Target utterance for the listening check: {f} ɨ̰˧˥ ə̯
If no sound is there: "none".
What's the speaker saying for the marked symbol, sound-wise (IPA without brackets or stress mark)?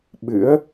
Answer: ɓ